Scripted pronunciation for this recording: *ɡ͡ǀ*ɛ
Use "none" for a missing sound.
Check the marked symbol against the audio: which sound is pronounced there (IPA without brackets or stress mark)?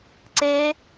ǀ